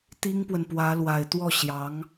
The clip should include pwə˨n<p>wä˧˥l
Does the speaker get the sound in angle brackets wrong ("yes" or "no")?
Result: no